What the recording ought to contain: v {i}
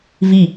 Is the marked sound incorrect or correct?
correct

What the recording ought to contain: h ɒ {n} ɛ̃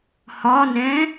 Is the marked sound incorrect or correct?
correct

